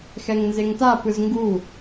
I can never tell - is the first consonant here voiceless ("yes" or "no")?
yes